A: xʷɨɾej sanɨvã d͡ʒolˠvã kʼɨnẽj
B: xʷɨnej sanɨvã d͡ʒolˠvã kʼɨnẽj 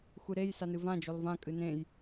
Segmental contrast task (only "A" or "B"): A